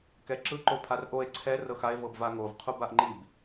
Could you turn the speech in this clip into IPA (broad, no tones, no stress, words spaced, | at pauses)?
kɛǁɯ ǃopʰarʔoe̯ ǀʰɛ rɤxae̯ vɤbvaŋov qʰubaʔŋ͡ǃib